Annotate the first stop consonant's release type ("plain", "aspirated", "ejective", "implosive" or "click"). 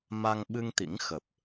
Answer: implosive